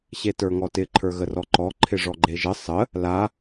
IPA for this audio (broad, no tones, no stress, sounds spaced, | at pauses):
ɕ e t ə˞ ŋ ɔ t ɪ ǃʰ ə˞ ɣ ə r ɔ ǃ ɔ ǃʰ ɪ ʐ ɔ ɡ͡ǃ e ʒ ə sˤ ə | l a